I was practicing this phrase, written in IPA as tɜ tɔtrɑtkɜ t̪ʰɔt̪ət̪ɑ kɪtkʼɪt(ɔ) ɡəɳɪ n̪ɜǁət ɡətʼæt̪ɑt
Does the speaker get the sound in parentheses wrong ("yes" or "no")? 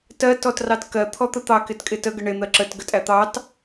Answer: yes